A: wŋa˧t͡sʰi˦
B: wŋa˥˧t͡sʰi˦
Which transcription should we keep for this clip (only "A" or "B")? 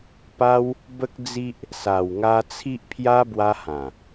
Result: A